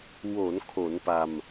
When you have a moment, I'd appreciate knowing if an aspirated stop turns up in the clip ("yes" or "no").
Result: yes